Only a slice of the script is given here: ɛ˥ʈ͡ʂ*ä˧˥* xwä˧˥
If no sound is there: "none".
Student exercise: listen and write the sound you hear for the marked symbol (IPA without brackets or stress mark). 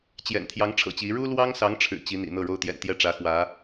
ä˧˥